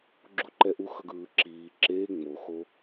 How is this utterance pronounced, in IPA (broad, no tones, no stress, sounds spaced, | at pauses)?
ɡ͡ǁ u ǃ ɛ ʔ u x ʌ ɡ ɯː ǁ iː ǁ eː ŋ͡m o x o